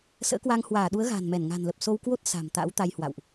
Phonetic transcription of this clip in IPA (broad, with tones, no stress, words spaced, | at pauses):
sə̰ː˧˥kwaː˧ŋ hwaː˧˩ɗu˨˦ə̯ ɣa̤ː˨˩nmɛ˧˩n ŋa̤˨˩nlə˨˩p̚so˧w kwo˦˥t̚ sa̤˨˩m t̪a̰˧˥wt̪a˧jhwa̰˧˨wʔ